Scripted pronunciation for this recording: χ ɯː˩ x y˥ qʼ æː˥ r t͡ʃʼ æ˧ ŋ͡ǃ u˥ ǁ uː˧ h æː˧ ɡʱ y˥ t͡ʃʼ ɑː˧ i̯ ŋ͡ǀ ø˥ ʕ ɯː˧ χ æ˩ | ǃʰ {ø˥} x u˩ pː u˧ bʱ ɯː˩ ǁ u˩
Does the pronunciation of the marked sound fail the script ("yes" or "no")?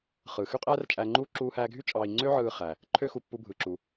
no